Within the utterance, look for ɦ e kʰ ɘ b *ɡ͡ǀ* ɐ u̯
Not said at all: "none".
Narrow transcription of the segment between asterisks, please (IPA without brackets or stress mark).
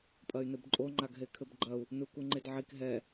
ɡ͡ǃ